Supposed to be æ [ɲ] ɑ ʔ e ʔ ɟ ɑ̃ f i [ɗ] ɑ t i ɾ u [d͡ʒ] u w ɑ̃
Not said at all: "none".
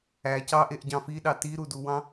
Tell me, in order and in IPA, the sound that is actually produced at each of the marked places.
c, ɗ, d

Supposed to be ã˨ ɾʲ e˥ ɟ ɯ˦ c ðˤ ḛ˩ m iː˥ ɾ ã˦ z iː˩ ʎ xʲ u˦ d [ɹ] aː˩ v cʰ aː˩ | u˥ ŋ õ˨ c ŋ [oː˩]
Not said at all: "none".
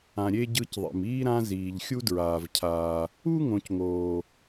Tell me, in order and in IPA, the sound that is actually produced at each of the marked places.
ɹ, oː˩

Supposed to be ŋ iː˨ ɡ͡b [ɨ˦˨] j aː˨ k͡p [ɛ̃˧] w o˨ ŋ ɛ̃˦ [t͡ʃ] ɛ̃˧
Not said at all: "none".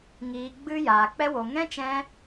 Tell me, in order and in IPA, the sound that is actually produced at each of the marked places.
ɨ˧, ɛ˧, t͡ʃ

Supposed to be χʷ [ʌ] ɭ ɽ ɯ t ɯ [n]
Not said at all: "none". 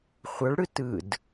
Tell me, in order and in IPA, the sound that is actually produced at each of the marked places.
ʌ, d

